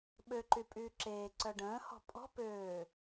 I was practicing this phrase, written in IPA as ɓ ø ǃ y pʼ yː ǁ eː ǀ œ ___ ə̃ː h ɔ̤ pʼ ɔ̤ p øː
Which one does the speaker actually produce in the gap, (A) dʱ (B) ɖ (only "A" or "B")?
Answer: B